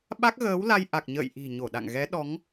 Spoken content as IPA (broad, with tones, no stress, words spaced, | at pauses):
ɓa˦˥k̚ ɣəː˨˦wla˧jʔa˨˩k̚ɲə̰ː˧˨j ʔi̤˨˩ ɲo˧˩ɗa̰˧˨ŋ ɣɛ˨˦ɗɔ˨˦ŋ